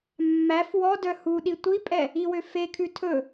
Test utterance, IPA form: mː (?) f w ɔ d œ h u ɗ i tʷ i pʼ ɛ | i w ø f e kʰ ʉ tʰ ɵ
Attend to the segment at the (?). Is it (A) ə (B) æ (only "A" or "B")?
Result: B